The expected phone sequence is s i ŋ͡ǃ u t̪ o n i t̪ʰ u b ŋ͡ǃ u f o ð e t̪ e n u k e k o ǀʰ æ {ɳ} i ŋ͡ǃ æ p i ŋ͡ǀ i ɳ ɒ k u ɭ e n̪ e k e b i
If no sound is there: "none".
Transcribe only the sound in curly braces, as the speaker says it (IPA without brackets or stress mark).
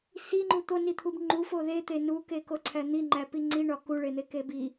n̪